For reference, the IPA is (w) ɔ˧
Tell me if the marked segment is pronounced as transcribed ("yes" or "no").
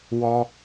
yes